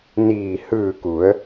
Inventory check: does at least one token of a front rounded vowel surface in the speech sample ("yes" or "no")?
no